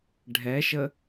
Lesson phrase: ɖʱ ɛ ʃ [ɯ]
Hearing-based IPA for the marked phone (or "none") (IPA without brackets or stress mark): ə